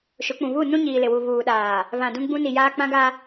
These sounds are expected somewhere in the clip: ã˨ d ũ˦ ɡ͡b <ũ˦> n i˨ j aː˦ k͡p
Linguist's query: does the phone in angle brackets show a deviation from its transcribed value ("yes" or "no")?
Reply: no